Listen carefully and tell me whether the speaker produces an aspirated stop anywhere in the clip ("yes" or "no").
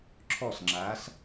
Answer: yes